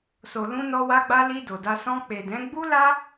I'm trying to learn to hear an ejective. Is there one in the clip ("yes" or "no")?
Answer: no